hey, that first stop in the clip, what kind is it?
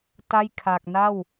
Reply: plain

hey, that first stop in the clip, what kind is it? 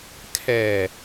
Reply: aspirated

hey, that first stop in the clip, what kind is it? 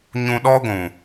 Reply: implosive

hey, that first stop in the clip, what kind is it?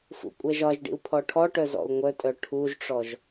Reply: ejective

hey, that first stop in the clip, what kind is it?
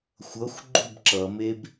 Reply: click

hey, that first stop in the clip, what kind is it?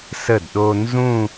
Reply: plain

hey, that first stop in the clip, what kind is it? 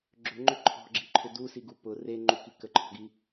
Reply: click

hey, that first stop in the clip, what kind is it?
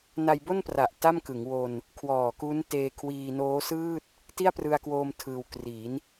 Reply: plain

